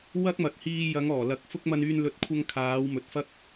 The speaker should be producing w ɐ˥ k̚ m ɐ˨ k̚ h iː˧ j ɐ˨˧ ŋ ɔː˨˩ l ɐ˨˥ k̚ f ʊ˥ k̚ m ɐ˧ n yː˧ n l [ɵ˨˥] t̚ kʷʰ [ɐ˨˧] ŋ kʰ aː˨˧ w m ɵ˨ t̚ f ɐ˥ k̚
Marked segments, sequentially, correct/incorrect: correct, incorrect

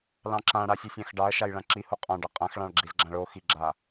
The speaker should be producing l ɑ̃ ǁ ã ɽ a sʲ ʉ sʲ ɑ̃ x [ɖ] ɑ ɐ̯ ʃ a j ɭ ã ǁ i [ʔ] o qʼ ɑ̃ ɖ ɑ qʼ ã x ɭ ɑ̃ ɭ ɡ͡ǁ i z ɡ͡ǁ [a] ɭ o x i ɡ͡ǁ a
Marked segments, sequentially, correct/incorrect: correct, incorrect, incorrect

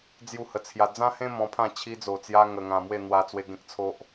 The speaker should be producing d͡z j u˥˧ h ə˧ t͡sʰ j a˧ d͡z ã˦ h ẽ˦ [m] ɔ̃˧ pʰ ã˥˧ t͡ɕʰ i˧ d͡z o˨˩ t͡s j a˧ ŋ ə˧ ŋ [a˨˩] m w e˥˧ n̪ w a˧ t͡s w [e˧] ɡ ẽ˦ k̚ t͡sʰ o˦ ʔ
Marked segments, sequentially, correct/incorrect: correct, incorrect, correct

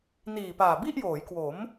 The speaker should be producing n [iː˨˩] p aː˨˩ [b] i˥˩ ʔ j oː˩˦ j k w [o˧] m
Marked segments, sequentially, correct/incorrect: correct, correct, incorrect

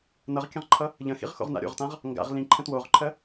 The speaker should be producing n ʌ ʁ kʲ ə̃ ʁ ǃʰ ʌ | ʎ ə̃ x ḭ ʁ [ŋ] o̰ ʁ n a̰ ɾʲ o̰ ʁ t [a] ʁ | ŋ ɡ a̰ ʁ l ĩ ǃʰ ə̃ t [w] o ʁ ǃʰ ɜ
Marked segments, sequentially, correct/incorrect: incorrect, incorrect, correct

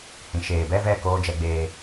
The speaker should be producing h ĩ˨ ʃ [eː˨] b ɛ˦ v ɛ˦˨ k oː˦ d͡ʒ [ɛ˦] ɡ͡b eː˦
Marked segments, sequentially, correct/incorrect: correct, correct

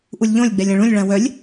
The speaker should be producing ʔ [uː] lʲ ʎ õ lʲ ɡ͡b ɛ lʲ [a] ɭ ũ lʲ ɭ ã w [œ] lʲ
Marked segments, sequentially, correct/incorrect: incorrect, incorrect, correct

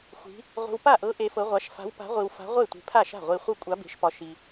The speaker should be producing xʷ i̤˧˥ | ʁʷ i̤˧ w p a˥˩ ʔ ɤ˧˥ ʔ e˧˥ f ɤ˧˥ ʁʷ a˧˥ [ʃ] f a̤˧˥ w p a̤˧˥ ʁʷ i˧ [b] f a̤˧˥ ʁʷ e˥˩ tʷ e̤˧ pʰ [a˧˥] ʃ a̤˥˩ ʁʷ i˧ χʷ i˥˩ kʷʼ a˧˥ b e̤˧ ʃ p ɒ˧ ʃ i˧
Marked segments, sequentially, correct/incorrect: correct, incorrect, incorrect

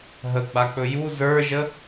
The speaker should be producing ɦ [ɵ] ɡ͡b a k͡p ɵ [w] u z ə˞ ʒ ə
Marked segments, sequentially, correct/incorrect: incorrect, incorrect

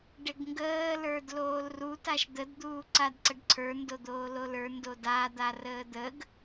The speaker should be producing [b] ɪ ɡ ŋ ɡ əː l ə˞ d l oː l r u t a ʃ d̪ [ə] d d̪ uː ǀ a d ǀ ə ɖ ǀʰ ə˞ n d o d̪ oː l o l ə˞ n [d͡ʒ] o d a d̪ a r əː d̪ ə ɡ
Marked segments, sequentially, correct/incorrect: incorrect, correct, incorrect

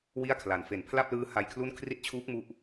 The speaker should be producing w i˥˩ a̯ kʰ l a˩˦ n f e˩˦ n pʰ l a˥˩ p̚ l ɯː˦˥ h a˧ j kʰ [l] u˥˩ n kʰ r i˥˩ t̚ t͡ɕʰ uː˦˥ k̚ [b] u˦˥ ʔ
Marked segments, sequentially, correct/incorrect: correct, incorrect

